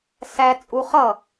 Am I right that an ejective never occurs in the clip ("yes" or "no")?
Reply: no